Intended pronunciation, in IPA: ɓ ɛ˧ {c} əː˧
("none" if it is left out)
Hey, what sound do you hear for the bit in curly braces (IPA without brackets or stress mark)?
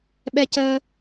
c